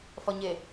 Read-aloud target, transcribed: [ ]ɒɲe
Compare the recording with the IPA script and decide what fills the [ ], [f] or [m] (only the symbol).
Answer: f